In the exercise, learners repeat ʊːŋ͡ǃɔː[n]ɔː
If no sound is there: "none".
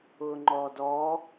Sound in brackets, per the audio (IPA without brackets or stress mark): d